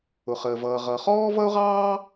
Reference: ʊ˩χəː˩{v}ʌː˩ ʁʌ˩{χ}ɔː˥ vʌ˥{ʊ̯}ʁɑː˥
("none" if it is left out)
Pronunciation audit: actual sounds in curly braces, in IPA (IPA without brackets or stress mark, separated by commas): v, χ, ʊ̯